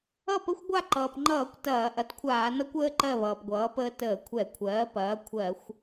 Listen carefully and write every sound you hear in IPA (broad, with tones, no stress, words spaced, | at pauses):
ʌ˥˨ pə˦˥xʷɡʷa˥˨ǃʌː˩pŋ͡ǃʌː˧˩˧kʷ tɐː˧˩˧ ʔɐ˩˥tkʷʰaː˧˩˧nʌ˦˥kʷəː˦˥ ǃɜ˥˨ βʌː˩pɡʷʌː˩˥pəː˦˥ təː˧˩˧kʷʰɛ˧˩˧kʷʰɜː˩˥ pɐː˩˥ kʷʰɜ˧˩˧xʷ